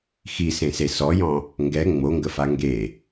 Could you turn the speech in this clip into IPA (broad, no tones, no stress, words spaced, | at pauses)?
xisẽse sɔjɔ̃ | ŋɡɛ ŋ͡moŋɡəfa ŋɡe